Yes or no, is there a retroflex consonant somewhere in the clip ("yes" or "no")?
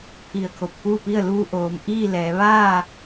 no